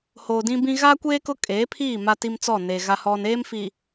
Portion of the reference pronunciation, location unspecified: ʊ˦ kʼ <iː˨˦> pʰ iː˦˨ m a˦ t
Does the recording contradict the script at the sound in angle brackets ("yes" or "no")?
yes